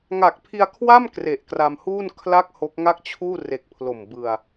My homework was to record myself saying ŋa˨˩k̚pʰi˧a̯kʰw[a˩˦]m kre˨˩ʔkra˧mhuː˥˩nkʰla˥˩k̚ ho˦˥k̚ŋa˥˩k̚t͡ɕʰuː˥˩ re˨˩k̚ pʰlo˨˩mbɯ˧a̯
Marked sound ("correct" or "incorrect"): incorrect